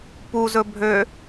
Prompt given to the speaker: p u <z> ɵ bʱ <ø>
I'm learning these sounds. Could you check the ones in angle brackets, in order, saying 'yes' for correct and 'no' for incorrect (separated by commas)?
yes, yes